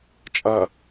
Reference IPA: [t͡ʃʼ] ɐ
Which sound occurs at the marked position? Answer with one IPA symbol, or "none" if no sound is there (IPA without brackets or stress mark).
t͡ʃʼ